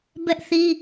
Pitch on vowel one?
high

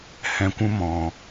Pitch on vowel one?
low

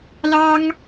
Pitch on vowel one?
high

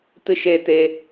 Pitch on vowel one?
high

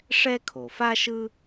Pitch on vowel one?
high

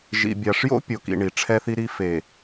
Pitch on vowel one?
low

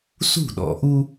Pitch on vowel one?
falling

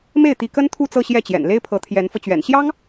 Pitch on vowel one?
falling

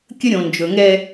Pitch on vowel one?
high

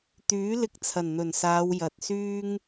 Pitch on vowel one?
rising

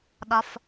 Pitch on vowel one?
low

